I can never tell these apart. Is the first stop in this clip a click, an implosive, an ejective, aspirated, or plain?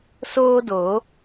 plain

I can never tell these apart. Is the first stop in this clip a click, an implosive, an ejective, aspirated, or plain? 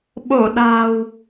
implosive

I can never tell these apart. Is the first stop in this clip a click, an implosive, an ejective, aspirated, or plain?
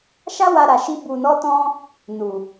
plain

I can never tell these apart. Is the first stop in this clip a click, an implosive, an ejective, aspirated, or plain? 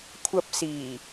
aspirated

